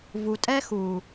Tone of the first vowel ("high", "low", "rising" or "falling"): low